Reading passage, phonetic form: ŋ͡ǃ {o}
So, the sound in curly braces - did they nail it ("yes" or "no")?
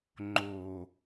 yes